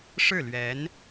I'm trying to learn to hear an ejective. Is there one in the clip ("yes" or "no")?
no